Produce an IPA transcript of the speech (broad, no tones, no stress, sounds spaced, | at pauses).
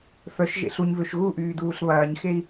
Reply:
f œ ʃ ʒ ḛ ɬ u ɲ v ø ʃ ɣ u ʔ yː d uː ɬ β ɐː ɲ x e i̯